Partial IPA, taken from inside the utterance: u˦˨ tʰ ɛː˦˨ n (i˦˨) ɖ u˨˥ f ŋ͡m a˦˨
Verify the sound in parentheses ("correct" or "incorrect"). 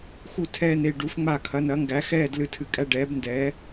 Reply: incorrect